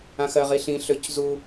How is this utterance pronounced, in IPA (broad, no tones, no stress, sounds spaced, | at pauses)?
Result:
ã x ɜ ʁ i ɬ ĩ ɬ ø c z u